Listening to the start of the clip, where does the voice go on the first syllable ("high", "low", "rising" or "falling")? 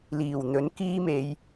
low